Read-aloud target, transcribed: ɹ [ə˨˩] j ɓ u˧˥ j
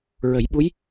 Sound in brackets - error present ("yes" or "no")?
yes